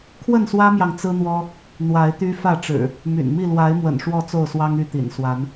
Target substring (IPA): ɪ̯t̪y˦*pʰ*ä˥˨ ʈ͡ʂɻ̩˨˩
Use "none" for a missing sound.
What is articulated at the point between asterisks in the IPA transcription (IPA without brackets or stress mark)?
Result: f